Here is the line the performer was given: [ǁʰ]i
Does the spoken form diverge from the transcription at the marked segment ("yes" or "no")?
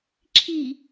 no